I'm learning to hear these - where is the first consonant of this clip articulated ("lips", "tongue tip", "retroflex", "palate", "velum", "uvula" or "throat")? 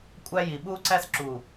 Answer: velum